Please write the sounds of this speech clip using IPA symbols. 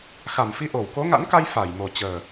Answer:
xa˧˩mfi˧ ʔo˧˩wko˨˦ŋa̰˧˥nka˧j fa˧˩j mo˨˩t͡ɕəː˨˩

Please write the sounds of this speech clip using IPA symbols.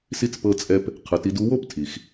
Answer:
si˧˥t͡spɤ˧t͡sʼɛ˧p | qʰɯ˩˧ti˧du˧˥wo˥p tʰi˩x

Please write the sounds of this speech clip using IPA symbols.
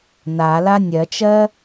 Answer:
nala nʲɜt͡ʃɜ

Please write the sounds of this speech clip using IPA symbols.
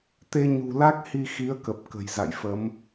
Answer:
t̪e˧ɲṳ˨˩la˦˥k̚ hi˧xi˨˦ə̯kə˨˩p̚ kə̤˨˩jza̰˧˨jfə˨˦m

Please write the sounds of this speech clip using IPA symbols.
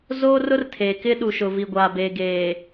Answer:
zoː˦rʊ˦rtʰeː˨ kɪ˦ ɗu˨ʃʊ˨ vi˨ɡʷaː˨beː˨ ɡeː˨

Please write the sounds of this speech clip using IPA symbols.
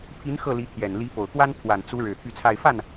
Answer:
pʰi˧˥n xɤ˥˩li˧˥t̪ʰjɛ˨˩n li˧˥po˨˩ʊ̯kwa˥n pʰwa˨˩nt͡su˧˥ɻɻ̩˨˩ t̪ʰy˥˧t͡sʰa˥˧ɪ̯ fa˥˩n

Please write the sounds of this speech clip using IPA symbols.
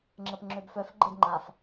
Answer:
ŋ͡ǁəpŋ͡ǁøbfœf ɡ͡ǃedŋ͡ǃaf

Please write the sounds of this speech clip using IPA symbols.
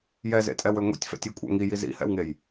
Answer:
jɛzḛtʼɛwø ŋʷḭtʲfɛ̰tʲikʷʼɛ̰ ŋiji zḭhɛ̰wŋej

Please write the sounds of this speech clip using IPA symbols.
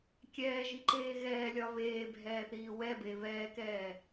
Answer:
kʲɛːʒiǃeː ɣɛːlʲɒ βeːbʱɛːθiː wɛbe βɛːkɛː

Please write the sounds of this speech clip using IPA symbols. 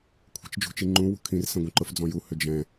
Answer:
kʷʰi̤t͡ʃd͡ʒṳt͡ʃiŋ͡ǃũ wṳkʰĩr sɛ̃ɡʷĩǃʊf d͡zɔ̃ju hʏd͡ʒɛ̃

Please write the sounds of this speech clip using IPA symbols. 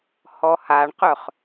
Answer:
hɔhaɳqœχ

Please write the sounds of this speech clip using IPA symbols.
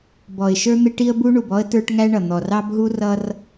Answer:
bɔ˨ɪ̯ʃə˞˦ n̪ɪ˦ʈi˦ə̯bu˦ ɳu˨bɔ˦ə̯ tə˞˦ʈŋæ˦ɳʌ˨ n̪ɔ˨r ɑ˦bɦu˦rʌ˦r

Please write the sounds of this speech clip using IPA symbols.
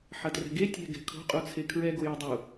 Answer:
ħɐtrɛ̤ɡe tʲɛ̤ ɡɛ̤kʰo̤ qʼut͡sʰekʰɹɛ ɡojodˤu

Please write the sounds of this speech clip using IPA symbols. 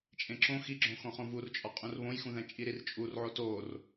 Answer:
t͡ʃʼẽǁõ xiɡ͡ǁõxõχõ vurt͡ʃʼɒ qʼũrβõjxũðæ̃ t͡ʃʼiɾirt͡ʃʼurʕo tor

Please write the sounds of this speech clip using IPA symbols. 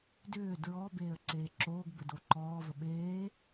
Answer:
dʏː dɹɔ beːə̯ǀeːǁoːɡ bədoǃɔːvə ɓeː

